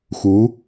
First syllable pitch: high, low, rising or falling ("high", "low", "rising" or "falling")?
rising